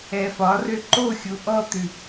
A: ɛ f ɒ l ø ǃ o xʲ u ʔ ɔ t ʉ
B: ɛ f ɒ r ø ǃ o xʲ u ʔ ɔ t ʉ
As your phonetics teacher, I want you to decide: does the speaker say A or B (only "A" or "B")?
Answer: B